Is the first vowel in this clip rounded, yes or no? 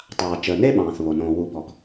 no